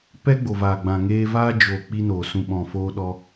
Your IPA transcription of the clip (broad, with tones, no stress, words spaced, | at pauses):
pɛ˦ɡ͡bo˨vaː˨ ɡ͡bã˨ŋeː˧ va˧d͡ʒo˨ k͡pi˦noː˨sũ˧ ɓɔ̃˨foː˦ɗɔ˦